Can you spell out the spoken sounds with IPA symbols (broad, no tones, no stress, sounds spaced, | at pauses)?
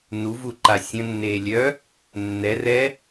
n u v u ǃ a sʲ ə̃ nː eː lʲ œː | nː ɛ r ɛː